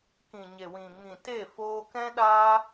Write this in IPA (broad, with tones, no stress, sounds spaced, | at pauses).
k ĩ˨ ɲ e˨ w ĩ˨ ŋ ĩ˨ t e˦˨ f oː˧ k ɛ̃˦ ɗ aː˦